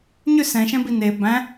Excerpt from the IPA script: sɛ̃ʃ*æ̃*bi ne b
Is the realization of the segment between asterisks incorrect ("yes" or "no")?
yes